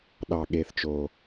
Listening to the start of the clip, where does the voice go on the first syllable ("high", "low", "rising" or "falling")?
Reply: low